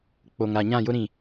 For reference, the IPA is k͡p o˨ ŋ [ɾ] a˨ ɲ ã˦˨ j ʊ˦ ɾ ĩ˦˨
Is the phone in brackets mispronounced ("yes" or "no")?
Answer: no